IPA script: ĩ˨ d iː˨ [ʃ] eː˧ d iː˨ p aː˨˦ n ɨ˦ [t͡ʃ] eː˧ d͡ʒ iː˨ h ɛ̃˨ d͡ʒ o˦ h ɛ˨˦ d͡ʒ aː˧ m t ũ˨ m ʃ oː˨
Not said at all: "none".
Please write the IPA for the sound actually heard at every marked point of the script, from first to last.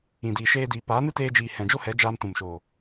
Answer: ʃ, t

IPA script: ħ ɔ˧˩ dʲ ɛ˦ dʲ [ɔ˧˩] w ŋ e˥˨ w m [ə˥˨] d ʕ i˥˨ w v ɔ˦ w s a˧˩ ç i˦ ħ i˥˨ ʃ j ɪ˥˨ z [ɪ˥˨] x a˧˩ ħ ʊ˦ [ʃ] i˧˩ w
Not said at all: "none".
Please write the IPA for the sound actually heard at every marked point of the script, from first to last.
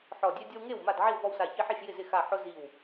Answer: ɔ˦, a˥˨, ɪ˥˨, z

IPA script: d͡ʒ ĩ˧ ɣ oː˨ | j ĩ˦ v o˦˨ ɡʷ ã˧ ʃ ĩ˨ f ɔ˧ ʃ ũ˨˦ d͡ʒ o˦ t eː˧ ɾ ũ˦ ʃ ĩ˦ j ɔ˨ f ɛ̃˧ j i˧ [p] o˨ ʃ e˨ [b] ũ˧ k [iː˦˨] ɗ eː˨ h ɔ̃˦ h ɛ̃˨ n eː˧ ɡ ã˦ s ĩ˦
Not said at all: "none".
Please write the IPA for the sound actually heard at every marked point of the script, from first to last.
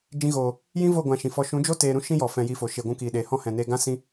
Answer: f, ɡʷ, iː˨

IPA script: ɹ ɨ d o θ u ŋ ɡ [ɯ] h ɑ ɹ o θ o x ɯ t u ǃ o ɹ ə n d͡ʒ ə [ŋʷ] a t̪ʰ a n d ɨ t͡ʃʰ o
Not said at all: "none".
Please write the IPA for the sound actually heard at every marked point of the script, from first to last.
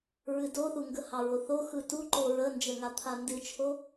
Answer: ə, ŋ

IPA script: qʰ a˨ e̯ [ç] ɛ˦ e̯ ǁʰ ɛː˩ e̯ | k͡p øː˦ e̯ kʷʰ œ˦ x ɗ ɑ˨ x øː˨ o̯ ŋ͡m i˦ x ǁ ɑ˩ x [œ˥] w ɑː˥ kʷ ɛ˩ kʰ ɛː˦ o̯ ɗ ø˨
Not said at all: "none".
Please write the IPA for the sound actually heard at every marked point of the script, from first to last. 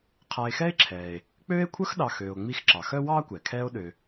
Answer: x, œ˥

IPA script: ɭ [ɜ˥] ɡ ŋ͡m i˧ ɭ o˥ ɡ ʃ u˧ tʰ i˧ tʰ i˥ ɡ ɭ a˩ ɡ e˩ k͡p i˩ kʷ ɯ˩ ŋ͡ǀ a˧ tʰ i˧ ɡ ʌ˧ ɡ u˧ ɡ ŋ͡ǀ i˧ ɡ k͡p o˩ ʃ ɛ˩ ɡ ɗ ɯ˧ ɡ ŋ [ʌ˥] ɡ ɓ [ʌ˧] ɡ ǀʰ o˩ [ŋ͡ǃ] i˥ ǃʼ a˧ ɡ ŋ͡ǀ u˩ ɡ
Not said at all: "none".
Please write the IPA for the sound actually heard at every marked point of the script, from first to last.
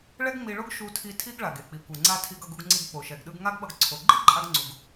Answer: ɛ˥, a˥, ʌ˧, ɡ͡ǃ

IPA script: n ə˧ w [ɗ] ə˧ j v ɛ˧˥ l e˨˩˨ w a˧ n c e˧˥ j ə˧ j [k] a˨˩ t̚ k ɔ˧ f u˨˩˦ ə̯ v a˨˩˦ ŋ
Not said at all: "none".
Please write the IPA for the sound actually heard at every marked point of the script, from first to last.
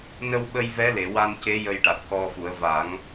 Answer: ɓ, ʈ

